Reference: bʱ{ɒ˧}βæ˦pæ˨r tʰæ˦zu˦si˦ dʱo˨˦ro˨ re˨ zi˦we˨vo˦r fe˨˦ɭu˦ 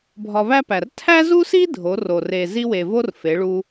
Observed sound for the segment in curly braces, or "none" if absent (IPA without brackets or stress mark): ɒ˧